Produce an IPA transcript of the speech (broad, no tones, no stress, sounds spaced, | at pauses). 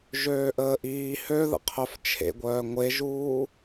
ʒ øː ʔ əː ʔ iː h ø ð ə̰ qʰ œ f t͡ʃʰ ḛ ɡʷ œː ŋʷ e ʒ uː